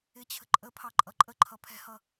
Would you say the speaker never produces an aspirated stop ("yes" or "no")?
no